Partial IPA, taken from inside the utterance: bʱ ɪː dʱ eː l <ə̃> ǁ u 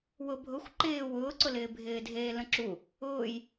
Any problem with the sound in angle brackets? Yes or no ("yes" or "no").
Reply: no